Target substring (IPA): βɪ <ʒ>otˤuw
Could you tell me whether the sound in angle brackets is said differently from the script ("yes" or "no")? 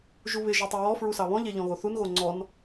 no